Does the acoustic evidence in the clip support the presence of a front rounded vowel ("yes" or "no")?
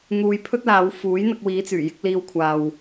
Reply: yes